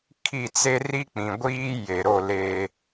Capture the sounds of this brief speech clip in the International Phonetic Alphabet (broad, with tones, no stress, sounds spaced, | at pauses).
kʰ i˦˨ t͡s e˦ r i˦ k͡p ĩ˨ ɡʷ iː˦ j e˨ ɾ o˦˨ l e˦